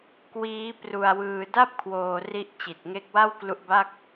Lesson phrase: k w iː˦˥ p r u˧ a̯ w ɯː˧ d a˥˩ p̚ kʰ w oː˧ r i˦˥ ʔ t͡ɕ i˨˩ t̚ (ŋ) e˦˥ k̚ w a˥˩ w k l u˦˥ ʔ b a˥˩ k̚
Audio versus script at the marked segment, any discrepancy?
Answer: no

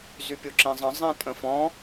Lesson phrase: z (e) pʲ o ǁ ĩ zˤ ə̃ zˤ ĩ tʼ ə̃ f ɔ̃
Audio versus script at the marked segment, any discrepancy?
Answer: yes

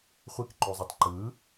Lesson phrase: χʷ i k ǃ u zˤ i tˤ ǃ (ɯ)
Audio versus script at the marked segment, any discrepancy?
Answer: no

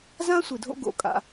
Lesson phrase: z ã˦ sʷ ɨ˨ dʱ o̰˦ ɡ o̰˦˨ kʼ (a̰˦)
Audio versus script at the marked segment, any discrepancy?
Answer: no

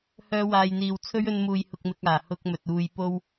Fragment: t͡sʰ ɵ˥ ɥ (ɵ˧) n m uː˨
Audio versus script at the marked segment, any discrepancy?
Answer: no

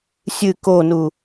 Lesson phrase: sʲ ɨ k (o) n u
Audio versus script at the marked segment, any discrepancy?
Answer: no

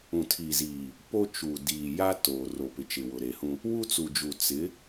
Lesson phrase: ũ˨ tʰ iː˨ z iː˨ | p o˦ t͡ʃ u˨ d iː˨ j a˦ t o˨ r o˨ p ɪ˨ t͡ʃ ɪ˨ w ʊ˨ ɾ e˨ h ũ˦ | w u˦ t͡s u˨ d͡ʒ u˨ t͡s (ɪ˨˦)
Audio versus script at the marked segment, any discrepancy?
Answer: no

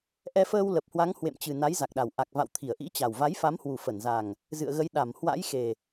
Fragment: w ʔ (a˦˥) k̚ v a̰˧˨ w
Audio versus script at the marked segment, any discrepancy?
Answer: yes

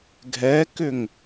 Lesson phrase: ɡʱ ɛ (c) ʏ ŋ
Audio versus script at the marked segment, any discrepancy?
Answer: yes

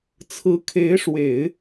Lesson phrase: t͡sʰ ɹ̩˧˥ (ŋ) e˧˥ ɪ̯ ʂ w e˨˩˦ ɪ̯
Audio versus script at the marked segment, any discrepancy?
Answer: yes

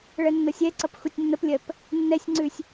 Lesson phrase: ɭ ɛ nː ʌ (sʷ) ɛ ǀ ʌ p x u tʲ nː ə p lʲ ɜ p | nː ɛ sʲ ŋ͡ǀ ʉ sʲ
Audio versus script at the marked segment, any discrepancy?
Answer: yes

